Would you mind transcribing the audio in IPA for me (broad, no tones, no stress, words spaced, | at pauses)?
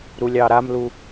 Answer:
ɾulʲɑɾamlu